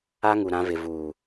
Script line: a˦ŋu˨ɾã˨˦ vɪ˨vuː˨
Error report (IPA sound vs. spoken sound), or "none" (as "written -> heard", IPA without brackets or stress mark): none